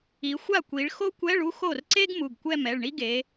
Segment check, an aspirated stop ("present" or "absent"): absent